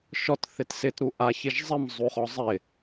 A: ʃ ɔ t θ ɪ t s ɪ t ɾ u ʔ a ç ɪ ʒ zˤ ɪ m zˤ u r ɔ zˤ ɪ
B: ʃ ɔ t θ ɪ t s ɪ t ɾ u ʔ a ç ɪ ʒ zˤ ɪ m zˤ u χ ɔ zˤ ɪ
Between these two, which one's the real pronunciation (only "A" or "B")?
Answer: B